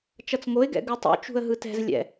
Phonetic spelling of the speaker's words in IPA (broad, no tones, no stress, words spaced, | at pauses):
t͡ʃʌt͡sŋoɪ̯ɡɛ̰ ɡɯtˤo̰ t͡ʃṳə̯ɦɯtɛ̤z lʲɛ̰